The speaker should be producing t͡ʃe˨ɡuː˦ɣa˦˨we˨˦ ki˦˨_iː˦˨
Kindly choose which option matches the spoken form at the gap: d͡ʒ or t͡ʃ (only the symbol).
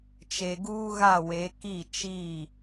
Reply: t͡ʃ